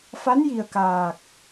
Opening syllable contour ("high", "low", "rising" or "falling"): rising